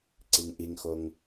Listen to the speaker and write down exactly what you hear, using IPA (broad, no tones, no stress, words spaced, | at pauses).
ǀiŋʔiŋxoŋ